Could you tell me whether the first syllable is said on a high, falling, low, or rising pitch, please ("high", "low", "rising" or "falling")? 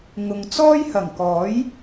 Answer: low